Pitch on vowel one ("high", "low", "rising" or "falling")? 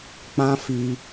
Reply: high